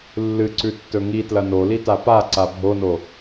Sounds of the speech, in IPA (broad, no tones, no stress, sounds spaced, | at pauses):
lː ɨ ǀ ʉ tː ɵ ŋ i t l ɐ n o l i t a p a ǀ a bʱ o n o